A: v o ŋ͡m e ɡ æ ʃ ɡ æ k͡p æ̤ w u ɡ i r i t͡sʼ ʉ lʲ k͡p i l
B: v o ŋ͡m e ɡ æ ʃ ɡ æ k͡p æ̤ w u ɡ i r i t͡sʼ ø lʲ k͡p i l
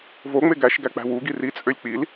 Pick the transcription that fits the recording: B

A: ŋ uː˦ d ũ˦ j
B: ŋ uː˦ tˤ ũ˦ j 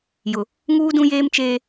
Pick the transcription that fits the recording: A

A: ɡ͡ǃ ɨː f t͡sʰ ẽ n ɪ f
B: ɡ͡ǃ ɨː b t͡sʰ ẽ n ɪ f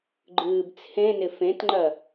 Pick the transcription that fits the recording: B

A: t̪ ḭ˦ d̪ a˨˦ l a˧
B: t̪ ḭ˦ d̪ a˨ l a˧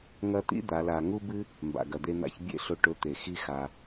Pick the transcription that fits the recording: A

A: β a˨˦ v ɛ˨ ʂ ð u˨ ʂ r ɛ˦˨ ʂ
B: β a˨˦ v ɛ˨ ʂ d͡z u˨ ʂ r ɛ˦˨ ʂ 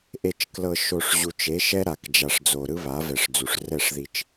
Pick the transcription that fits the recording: B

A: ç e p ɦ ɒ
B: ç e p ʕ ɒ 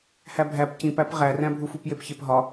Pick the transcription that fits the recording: A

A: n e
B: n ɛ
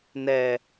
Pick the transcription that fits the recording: B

